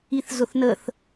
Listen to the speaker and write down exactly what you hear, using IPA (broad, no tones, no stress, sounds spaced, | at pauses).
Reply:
i θ z ʊ θ n ə θ